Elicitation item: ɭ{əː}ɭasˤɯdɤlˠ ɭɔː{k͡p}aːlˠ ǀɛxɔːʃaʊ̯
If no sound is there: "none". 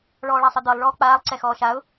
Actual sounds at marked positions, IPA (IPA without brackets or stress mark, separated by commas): ɔː, k͡p